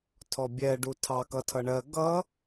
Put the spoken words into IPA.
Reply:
tʰ ɔ bʲ ɛ ɖ u tʰ ɑ k ʌ tʰ ʌ ɳ ɜ ɡ ʌ

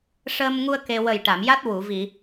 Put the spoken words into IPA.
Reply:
ʂ əː˧ m ŋ u˧ ə̯ k e˧ w ə˨˩ j ʈ a˨˩˨ m j a˦˥ t̚ w u˨˩˨ v i˨˩˨

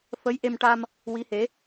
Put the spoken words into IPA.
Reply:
f ə˧˥ j ʔ e˧ m ʈ a˧ m | w i˧˥ h e˧˥

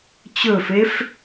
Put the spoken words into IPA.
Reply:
t͡ɕ ɵ f e f

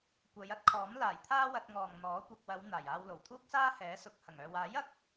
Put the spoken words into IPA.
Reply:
kʷ ɐ˨˧ j ɐ˨˥ t̚ kʰ ɔː˨˥ m l aː˨˩ j t̪ʰ aː˧ w ɐ˨ t̚ ŋ ɔː˨ ŋ n̪ ɔː˨˥ kʷ ɐ˧ k̚ w ɐ˨˧ w n̪ aː˨˩ j aː˧ w l o˨˩ w t̪ʰ uː˥ k̚ s aː˥ h ɛː˨˥ s ʊ˨ k̚ h ɐ˨˩ ŋ œː˨ w aː˨˥ j ɐ˨ k̚

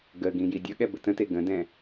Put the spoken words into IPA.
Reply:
ɡ ə ɡ ĩ j i dʲ ʌ ɠ ɛ b ɘ t ə̃ t e ɡ ə̃ d ɛ̃

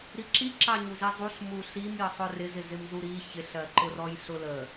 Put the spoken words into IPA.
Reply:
ɾ i ǁ i ǁ ɑ ɲ u z i zˤ u ɬ m u ɬ i m j ə sˤ ʊ r ɪ z ɪ z ɪ m z u ɾ i ç ɪ ɬ ɜ ǃ ʊ r ɔ j ɬ ʊ l ə

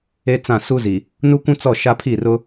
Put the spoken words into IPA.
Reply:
e˦ t͡s ã˦˨ s u˦ z i˨ | n u˦ kʷ ũ˦ t͡s ɔ˦˨ ʃ a˦ pʰ i˦˨ r ʊ˦

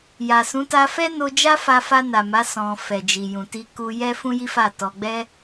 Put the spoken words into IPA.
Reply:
j a˨ s ũ˨˦ t a˧ f ɛ˦ n o˧ d͡ʒ a˦ f a˧ f a˧ n a˨ m a˨˦ s ɔ̃˧ f ɛ˨ d͡ʒ i˨ j ũ˨ t i˧ k u˧ j ɛ˦ f ũ˦ j i˦ f a˦˨ t ɔ˧ ɡ͡b ɛ˦

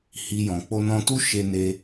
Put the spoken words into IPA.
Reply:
h i˧ j ɔ̃˨ k͡p o˧ n ɔ̃˧ t u˦ ʃ e˧ n e˧

